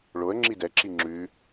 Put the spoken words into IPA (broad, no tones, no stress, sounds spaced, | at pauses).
ɭ o ə̯ ŋ͡ǁ i d ɛ ǁ i ŋ͡ǁ ʉ